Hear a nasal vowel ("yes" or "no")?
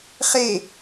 no